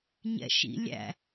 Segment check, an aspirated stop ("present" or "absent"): absent